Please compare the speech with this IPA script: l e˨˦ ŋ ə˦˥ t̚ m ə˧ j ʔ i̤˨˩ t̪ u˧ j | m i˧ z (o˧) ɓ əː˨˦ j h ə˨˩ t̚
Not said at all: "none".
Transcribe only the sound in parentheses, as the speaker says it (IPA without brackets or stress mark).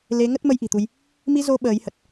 o˧